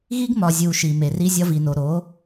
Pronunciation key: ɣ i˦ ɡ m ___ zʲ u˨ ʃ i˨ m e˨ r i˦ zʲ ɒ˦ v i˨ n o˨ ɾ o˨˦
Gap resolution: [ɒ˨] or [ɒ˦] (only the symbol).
ɒ˨